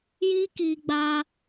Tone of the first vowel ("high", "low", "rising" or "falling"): high